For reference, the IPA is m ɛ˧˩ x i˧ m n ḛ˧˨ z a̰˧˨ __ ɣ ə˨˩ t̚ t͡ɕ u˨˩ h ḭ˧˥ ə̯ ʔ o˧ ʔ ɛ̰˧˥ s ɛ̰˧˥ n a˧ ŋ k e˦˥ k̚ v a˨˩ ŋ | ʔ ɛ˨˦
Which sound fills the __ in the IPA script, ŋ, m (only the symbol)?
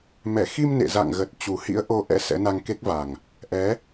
ŋ